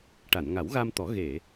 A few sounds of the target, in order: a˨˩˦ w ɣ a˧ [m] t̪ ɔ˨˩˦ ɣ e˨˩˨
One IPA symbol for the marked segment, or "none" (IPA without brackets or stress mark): m